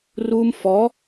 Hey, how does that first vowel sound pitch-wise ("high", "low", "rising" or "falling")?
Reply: high